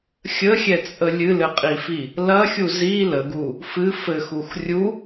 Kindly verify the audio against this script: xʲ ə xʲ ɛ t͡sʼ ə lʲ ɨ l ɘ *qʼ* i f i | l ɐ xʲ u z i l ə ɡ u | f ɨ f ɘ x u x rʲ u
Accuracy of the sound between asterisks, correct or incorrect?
correct